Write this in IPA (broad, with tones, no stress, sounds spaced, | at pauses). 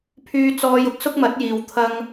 pʰ yː˧ t͡s ɔː˧ j ʊ˥ k̚ s ʊ˥ k̚ m ɐ˨˥ t̚ j iː˨ w t̪ʰ ɐ˧ ŋ